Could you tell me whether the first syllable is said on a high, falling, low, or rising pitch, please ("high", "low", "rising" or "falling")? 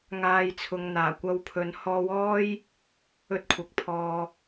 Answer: low